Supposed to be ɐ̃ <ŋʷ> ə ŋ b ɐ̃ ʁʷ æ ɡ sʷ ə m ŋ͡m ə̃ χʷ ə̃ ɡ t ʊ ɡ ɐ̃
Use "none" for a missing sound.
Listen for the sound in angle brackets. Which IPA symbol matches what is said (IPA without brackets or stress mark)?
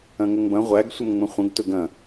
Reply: ŋ